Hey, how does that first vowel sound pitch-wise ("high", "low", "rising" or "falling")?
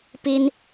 high